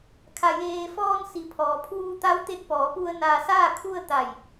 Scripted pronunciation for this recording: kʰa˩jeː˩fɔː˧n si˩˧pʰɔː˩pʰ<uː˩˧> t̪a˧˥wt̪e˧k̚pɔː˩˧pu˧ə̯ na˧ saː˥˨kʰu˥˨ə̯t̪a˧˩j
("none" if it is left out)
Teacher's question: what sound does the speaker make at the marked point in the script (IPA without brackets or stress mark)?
uː˧